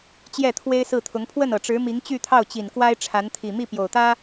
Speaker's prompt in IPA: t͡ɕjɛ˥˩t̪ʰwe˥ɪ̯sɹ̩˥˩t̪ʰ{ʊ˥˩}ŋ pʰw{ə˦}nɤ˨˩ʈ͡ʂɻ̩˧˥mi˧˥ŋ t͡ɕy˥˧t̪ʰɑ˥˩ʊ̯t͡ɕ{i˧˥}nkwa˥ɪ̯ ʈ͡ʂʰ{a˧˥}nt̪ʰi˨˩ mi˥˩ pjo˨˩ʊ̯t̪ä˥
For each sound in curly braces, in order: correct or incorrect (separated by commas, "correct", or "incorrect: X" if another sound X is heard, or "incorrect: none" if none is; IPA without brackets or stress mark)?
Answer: incorrect: ʊ˧˥, incorrect: ə˥˩, incorrect: i˨˩, correct